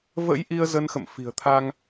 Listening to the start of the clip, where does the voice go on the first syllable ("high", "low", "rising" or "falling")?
rising